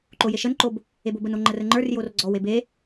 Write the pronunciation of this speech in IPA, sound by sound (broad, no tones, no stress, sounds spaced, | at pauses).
ǃ o j e ʃ ə n ǃ o b | e b o b ə n o ŋ͡ǃ ə r ə ŋ͡ǃ ə˞ r j o r ɡ͡ǀ ɔ w e b e